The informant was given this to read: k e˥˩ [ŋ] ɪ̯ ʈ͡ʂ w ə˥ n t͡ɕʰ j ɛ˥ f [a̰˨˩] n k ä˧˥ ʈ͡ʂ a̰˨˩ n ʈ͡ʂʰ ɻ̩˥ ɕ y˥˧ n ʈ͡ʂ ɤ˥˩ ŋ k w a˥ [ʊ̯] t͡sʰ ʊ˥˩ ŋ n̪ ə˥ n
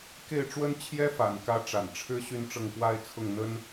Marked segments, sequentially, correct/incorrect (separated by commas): incorrect, correct, incorrect